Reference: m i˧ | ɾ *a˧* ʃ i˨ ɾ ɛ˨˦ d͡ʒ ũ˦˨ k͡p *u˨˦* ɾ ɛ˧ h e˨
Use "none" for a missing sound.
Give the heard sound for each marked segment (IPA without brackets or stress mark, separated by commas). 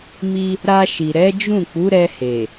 a˧, u˨˦